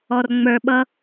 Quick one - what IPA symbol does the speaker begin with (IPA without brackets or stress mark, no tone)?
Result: ɔ